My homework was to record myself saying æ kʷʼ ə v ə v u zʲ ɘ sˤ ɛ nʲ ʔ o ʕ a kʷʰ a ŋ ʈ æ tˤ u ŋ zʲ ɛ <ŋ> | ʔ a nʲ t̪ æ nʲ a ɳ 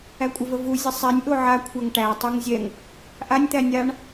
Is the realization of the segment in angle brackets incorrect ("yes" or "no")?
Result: no